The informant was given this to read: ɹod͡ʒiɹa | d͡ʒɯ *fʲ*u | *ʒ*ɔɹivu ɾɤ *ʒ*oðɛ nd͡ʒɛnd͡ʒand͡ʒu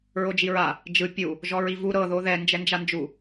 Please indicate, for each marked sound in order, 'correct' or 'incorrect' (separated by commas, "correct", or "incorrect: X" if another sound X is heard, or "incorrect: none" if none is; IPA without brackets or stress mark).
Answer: incorrect: pʲ, correct, incorrect: ð